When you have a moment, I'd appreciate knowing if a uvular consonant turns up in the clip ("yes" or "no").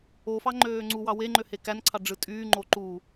no